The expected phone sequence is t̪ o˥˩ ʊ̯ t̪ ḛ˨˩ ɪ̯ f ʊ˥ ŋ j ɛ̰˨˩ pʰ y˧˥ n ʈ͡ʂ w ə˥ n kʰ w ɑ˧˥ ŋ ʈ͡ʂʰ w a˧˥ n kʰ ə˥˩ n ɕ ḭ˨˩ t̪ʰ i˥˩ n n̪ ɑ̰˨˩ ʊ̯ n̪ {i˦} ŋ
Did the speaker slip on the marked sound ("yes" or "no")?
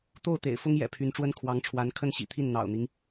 no